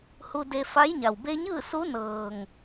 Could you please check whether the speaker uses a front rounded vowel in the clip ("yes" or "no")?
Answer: no